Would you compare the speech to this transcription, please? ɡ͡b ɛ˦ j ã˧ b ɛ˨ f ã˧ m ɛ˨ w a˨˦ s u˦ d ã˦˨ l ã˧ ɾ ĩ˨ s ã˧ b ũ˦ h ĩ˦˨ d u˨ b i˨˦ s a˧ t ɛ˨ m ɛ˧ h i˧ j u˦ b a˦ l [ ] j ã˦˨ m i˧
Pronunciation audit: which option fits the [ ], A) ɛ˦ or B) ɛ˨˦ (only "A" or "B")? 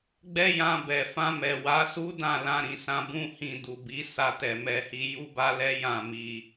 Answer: A